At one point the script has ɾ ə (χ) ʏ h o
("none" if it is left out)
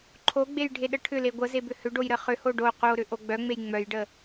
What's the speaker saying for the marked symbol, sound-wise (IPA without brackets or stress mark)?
χ